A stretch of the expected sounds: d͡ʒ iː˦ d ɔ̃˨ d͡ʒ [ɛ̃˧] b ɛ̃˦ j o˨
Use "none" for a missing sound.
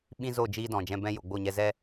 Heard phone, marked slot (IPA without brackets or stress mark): ɛ̃˧